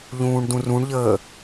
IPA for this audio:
ʎ ũː ɳ d ũ r ũ ɳ ʎ əː

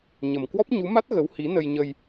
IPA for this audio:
ɲ ə˨˩ m k w ɔ˦˥ p̚ ɲ u˨˦ m a˦˥ t̚ ɣ ə˨˦ w h i˨˦ n ə˧ j ɲ ə˧ j

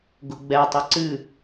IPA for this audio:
ɡ ʊ ɡ͡b ɛ tˤ ʊ ǀ ɨ

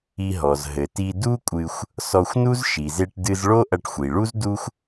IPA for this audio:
i˧ ɦ ɔ˩ z ɦ ɘ˩ t i˧ d u˥ kʷʼ ɨ˧ xʷ | s ɔ˧ xʷ n u˥ z ʃ i˩ z e˧ ʈ d ɨ˧ z ɭ o˥ ʔ ɐ˧ ʈ xʷ i˩ ɭ u˥ z d u˥ xʷ

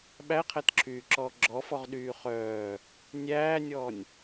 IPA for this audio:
ɓ æ qʰ æ t ǁʰ yː ǁ ɔː ɡ͡ǁ ɔ f ɔ ʁ ɗ yː χ œː | nʲ æː nʲ ɔː nʲ

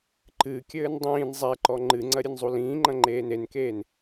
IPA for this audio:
ǃ ɨ kʲ ɘː n dˤ ĩː n zˤ ɛ ǃ ɔ ŋ͡ǃ ɨ ŋ͡ǀ ɐ ɾʲ ɨ n zˤ u l ĩː ŋ͡ǃ ɐ̃ ŋ͡ǃ eː n e n k eː n

